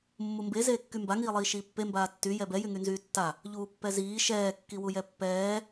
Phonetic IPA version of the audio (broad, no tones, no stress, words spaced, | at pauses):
mːumbe zeːkːymba ŋiːlˠiːʃiːpːe mbaːtːy jɛbɛ jyŋynzyːtːa | ʎuːpːɛziː ʃɛː kːiwujɛpːɛː